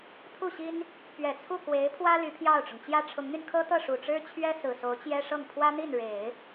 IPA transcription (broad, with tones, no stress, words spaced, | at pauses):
t̪ʰu˥˩ɕi˥n | pɥɛ˨˩t͡sʰu˥˩ kwe˧˥ɪ̯pʰwä˥ ly˧˥pʰjɑ˥˩ʊ̯ʈ͡ʂʊ˩ŋ t͡ɕjä˥ʈ͡ʂʰʊ˧˥ŋn̪y˧n kʰɤ˥t̪ɤ˥˩ ʂu˨˩ʈ͡ʂɻ̩˥t͡ɕʰɥɛ˥ sɹ̩˨˩so˧˥ʊ̯t͡ɕjɛ˥ʂɤ˥˩ŋ pʰwä˥n̪i˥˩nɻe˨˩˦ɪ̯